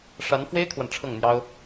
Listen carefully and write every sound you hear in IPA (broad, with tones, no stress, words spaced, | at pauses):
ʂa˧˥nfwe˥ɪ̯kʰwa˨n ʈ͡ʂʰɤ˥˩ŋn̪jɑ˥ʊ̯